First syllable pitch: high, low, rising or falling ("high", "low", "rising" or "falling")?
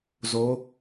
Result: rising